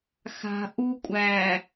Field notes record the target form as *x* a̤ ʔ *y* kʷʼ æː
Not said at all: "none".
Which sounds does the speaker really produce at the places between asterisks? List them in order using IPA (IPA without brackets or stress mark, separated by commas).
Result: x, u